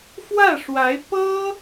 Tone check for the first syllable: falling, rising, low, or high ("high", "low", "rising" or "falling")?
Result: falling